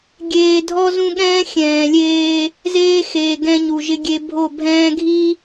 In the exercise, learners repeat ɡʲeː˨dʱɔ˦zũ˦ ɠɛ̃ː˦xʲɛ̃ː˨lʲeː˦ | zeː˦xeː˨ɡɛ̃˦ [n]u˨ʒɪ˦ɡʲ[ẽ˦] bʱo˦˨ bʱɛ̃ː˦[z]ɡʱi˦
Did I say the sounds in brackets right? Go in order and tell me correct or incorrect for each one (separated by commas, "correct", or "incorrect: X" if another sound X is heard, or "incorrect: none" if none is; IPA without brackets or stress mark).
incorrect: ɲ, incorrect: e˦, incorrect: none